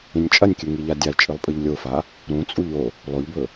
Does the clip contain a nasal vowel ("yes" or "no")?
yes